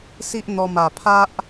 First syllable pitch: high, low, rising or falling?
high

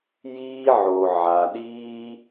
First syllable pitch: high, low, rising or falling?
high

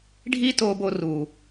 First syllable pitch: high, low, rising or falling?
high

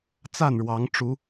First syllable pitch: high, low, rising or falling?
falling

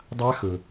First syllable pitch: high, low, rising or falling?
high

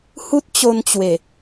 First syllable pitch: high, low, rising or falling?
high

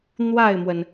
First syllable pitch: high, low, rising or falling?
falling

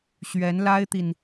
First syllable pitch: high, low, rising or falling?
rising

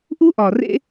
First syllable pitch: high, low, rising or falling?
high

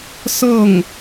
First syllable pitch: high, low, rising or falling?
falling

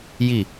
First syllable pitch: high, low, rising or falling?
low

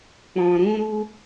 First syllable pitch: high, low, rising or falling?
low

